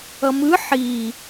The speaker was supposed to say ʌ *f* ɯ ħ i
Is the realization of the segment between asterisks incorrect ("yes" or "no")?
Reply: yes